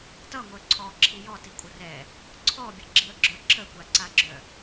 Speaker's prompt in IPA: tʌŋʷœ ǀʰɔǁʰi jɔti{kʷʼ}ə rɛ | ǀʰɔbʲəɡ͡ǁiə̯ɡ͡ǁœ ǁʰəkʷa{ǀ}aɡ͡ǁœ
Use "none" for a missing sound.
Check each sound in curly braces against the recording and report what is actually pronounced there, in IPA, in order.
kʷʼ, ǀ

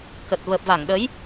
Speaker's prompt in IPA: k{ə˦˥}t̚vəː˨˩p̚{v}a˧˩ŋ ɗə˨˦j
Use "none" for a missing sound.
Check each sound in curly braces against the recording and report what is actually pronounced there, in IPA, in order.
ə˨˩, v

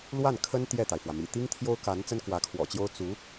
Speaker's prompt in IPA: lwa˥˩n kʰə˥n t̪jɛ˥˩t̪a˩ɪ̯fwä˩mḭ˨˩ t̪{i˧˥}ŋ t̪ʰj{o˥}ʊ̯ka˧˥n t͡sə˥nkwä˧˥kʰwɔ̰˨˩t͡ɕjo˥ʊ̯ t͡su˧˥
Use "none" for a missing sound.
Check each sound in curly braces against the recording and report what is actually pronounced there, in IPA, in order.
i˥, o˥

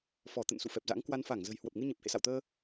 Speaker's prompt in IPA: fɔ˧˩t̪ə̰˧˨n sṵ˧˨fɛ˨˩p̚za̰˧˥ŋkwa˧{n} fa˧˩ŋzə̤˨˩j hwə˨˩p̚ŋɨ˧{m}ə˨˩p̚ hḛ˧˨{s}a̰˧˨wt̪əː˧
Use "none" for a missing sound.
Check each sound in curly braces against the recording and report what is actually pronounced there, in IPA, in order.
n, ɲ, s

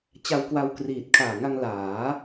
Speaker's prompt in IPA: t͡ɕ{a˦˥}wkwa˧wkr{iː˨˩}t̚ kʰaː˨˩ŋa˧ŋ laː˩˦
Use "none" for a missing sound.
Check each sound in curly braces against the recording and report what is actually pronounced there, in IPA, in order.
a˧, iː˨˩

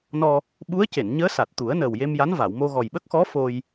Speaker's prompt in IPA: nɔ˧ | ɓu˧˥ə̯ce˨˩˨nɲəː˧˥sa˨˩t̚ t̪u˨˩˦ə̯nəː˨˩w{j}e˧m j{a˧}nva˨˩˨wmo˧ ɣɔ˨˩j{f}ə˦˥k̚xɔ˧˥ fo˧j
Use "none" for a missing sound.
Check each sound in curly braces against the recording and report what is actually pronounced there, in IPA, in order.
j, a˧˥, ɓ

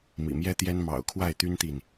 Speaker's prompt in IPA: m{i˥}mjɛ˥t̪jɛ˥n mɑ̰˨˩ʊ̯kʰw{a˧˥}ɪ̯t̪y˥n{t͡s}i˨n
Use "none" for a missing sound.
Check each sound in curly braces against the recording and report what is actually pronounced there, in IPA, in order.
ḭ˨˩, a˥˩, t̪

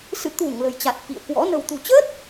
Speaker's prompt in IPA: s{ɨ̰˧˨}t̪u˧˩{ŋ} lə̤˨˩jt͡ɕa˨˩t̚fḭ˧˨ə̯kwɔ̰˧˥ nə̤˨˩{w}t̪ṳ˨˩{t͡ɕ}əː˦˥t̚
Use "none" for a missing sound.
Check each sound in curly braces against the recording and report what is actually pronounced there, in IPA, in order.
ɨ̰˧˨, ŋ, w, t͡ɕ

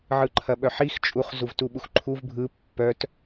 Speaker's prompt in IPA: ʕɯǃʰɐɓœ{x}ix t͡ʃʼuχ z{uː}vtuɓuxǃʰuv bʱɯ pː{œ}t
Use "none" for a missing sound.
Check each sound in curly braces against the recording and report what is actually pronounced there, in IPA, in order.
ħ, u, œ

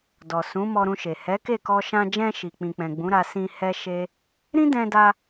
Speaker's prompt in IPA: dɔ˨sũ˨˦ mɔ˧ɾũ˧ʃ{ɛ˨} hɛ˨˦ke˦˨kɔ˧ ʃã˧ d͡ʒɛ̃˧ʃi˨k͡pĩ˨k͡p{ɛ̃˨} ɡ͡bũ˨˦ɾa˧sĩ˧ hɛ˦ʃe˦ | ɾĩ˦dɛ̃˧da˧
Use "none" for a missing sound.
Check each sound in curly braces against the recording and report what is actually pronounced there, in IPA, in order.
e˨, ɛ̃˨

